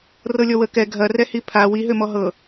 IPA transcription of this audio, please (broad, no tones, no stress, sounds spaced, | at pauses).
r ɤ lʲ ɔ w ə k ɛ ɡʱ ɐ r ɛ h i pʰ a w i ɦ ø m ɔ ɦ ɤ